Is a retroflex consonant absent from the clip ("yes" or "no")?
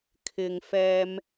yes